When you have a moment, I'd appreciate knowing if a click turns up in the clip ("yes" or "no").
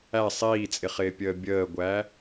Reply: no